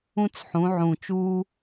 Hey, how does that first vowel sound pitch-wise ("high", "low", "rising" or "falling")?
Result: high